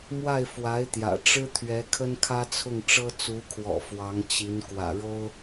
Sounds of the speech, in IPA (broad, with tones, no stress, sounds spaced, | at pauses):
m w a˥˩ ɪ̯ f w a˧˥ ɪ̯ t̪ j ä̰˨˩ ʈ͡ʂ ɻ̩˥ t̪ʰ ɥ ɛ˧˥ kʰ ə˥ n kʰ ä˥ t͡sʰ ʊ˥˩ ŋ ʈ͡ʂ ɤ˥ t͡s u˧˥ kʰ w ɔ̰˨˩ f w ɑ˧˥ ŋ t͡ɕ i˧˥ n k w ä̰˨˩ ɻ o˥ ʊ̯